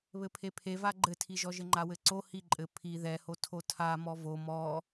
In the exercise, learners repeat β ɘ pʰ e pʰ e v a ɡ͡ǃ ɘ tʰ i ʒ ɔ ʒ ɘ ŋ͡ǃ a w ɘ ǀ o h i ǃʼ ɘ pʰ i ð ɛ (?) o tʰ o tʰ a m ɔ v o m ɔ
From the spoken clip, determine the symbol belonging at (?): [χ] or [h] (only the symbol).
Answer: h